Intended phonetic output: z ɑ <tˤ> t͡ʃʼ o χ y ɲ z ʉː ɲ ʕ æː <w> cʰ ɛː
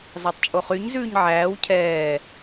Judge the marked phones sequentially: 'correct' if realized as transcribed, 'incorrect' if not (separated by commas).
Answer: correct, correct